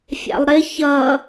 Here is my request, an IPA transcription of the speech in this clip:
fʲ ɑ̰ lˠ ɾ ɪ ç ʌ

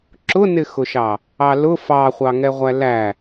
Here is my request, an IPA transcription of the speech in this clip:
ǁ ʊ n ɪ x ʊ ʃ ɑ | ɑ l ʊ f ɑ χʷ ɑ ŋ ɛ ʁʷ æ l æ

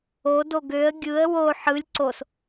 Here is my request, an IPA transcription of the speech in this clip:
o d o ɡ ø ə̯ ɡʲ ɯ ə̯ w o ħ ɯ lʲ ǀ o s

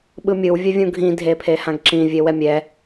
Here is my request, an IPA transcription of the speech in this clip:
ɓ ɯ mʲ ɯ w vʲ ɛ vʲ ũ ɡʱ ĩ dʱ e pʰ e h ã ɡ ǁ ĩ vʲ e w ɛ mʲ ɛ

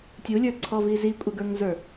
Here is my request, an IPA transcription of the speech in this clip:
tʲ u lʲ ə˞ ǀʰ ɔ v i z i kʷʼ ɪ ɡ ə˞ ŋ z ə˞

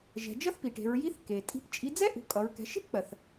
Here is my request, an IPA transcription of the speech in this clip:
ʒ ɛ̤˩˧ d͡ʒ ʌ˥ θ p i˩ ʈ e̤˩˧ ɹ j i˧˥ θ k e˩ tʼ i̤˧˥ p t͡ʃʼ i˧˥ d͡z ɛ˥ ʔ ṳ˩˧ kʼ ʌ˩˧ ɹ k ɛ̤˩˧ ʃ e̤˥ p k͡p ɜ˩ θ

